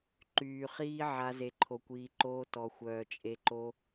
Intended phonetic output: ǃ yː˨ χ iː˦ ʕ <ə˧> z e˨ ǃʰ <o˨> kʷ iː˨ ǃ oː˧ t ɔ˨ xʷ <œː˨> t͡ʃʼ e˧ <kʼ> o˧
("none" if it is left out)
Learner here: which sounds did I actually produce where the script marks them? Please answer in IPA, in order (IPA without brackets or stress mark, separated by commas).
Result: a˧, o˨, œː˨, ǃ